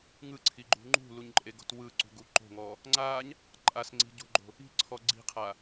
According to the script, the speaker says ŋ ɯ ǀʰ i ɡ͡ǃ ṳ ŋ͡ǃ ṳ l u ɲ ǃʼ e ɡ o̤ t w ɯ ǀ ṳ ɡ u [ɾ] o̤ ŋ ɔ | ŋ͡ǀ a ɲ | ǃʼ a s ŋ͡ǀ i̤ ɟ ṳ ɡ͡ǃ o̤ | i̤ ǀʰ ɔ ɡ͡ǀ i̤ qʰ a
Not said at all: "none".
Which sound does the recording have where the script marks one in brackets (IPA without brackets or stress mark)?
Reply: ǃ